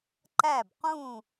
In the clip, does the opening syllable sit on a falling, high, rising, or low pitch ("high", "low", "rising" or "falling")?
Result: falling